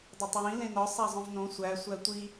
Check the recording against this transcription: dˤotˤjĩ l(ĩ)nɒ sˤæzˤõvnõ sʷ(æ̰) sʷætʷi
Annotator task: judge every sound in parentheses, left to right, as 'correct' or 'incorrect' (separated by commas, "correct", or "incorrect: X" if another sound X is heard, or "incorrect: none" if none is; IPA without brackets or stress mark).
incorrect: ẽ, incorrect: æ